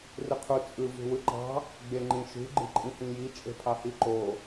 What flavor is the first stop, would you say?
aspirated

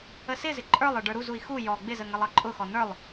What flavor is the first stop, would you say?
click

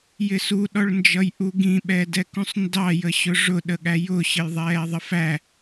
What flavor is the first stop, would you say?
implosive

